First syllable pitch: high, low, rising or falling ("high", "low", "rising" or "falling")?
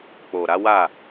low